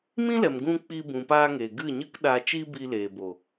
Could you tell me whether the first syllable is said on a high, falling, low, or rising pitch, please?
high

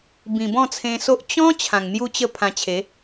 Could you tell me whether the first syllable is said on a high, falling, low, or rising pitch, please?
low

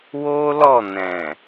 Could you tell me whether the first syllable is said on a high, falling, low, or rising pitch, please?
high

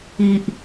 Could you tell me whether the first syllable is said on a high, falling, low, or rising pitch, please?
low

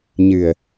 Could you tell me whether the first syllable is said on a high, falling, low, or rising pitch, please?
low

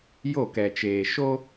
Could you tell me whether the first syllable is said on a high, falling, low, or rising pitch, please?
falling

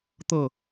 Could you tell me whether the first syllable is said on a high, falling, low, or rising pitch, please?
falling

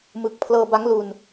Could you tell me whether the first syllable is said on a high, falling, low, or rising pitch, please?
low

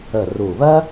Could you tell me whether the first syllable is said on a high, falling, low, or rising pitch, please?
low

